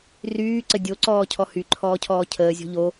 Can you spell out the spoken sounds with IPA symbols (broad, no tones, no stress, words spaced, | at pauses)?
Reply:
ryːǀə dʲoǀɔːcʰɔ hyǃʰɔːcʰɔː cʰəːzʲɔ̤ ʎo